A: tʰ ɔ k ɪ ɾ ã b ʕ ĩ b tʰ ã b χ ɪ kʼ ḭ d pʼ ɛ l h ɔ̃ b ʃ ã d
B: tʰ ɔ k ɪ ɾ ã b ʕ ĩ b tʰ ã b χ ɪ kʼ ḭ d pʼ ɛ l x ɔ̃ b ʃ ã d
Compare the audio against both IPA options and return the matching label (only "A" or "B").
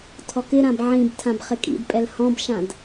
A